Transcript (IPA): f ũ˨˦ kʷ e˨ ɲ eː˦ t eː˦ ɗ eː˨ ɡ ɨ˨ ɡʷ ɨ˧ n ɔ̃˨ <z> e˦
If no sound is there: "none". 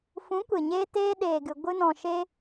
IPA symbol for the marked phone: ʃ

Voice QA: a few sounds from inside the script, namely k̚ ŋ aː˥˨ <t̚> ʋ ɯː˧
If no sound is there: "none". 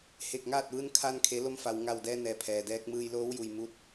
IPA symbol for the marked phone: t̚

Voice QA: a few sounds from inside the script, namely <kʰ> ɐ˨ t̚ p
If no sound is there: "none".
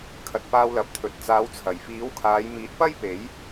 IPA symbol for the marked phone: kʰ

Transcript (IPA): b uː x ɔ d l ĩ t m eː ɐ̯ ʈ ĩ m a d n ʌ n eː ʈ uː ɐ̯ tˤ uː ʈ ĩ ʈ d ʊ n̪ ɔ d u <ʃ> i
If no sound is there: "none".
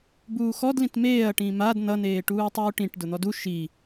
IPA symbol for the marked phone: ʃ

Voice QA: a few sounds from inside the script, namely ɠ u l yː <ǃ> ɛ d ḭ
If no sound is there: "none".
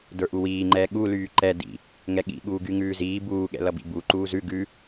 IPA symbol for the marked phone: ǃ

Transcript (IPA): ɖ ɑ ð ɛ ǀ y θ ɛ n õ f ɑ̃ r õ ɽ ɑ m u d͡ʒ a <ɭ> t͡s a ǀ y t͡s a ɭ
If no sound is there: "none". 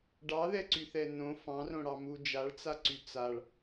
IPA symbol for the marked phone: ɭ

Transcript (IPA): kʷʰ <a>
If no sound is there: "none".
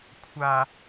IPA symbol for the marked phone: a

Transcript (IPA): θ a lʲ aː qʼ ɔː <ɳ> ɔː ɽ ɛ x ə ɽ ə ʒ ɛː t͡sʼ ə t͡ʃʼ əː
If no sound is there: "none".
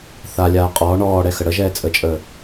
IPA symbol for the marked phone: ɳ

